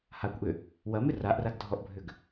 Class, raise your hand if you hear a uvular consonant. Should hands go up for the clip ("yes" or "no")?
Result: no